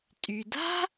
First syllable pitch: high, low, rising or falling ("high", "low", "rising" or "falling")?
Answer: low